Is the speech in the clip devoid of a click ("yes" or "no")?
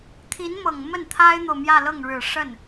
yes